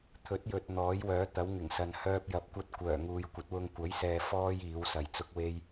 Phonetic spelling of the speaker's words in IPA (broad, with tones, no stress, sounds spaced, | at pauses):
t̪ʰ ɵ˨˥ t̚ j ɵ˨ t̚ n̪ ɔː˨˥ j w œː˨˥ t̪ ɐ˨˥ w ŋ ɪ˨˩ ŋ s ɐ˨ n h œː˧ p̚ j ɐ˨˥ p̚ kʷ ɐ˧ t̚ kʷ œː˨˩ ŋ uː˨ j kʷ ɐ˨˥ t̚ w ʊ˧ ŋ kʷ ɐ˨˥ j s ɛː˨ f ɔː˧ j iː˨˥ w s ɐ˨ j t͡s ʊ˥ k̚ w e˥ j